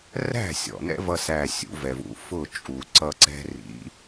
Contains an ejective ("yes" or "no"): yes